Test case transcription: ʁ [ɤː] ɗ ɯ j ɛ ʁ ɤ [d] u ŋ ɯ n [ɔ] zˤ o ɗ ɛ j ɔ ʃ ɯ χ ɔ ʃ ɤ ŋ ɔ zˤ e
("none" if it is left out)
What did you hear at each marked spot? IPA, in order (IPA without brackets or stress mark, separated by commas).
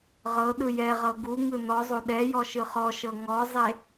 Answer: ɤ, ɡ, ɔ